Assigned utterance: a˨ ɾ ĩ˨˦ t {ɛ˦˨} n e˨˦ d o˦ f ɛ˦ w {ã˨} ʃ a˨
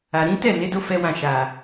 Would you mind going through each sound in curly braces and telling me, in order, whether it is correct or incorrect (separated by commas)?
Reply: correct, incorrect